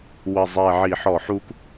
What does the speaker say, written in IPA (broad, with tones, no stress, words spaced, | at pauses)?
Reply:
wə˨˩ zˤɛ˨˩ ʕi˧˩˧ħɔ˧˩˧ħu˦k